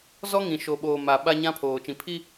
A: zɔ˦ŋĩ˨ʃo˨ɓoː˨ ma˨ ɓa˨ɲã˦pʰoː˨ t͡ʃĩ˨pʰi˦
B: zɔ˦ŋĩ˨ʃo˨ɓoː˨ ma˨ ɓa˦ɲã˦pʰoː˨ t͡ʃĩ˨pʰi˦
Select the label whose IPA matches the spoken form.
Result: B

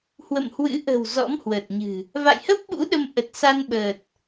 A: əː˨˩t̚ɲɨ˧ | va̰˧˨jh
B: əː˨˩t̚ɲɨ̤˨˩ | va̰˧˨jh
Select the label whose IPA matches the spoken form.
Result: B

